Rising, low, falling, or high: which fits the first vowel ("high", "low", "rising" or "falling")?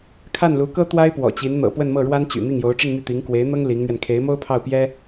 falling